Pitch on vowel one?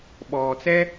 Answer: low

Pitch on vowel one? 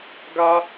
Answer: high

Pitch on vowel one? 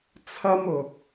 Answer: high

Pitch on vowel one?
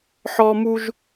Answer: high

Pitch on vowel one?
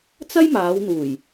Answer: high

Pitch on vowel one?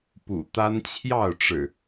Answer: low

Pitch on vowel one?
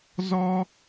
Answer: high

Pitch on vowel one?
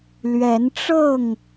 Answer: rising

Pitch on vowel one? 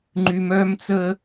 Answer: high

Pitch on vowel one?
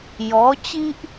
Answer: rising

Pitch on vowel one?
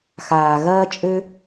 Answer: low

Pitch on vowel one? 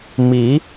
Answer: rising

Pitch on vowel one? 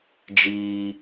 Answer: low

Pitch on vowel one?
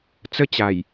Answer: falling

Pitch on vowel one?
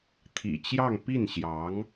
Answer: low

